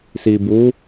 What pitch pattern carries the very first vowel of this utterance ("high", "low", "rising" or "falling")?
low